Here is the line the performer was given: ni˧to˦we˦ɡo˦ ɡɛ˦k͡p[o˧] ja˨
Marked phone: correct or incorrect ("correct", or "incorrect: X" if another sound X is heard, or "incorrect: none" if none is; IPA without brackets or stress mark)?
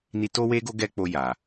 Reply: correct